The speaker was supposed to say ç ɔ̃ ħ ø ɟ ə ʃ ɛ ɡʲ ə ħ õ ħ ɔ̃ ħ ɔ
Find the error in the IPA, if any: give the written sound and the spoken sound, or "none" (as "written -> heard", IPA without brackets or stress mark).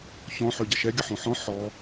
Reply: none